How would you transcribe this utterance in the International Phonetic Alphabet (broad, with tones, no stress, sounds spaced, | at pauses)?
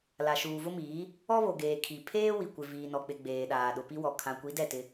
l a˨ ʃ uː˨ v ʊ˦ m iː˨˦ | ɔ˦ β o˨ ɡ eː˨ kʰ i˨ pʰ eː˦ w i˨ kʷ ɪ˨ v iː˨ n ɔ˨ k͡p ɪ˨ ɡ͡b eː˨ ɗ aː˨ ɗ ʊ˨ p i˦ w ɔ˨ kʰ ã˨ kʷ i˨˦ d ɛ˦˨ t ɪ˦